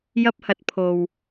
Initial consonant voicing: voiced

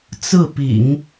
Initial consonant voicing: voiceless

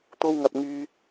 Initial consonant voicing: voiceless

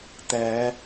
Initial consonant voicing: voiceless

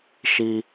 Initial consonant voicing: voiceless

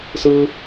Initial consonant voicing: voiceless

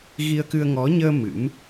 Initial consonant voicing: voiced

